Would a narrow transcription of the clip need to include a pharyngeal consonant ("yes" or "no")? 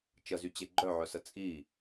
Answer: yes